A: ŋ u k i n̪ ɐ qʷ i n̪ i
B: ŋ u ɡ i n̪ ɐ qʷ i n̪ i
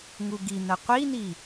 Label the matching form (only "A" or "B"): B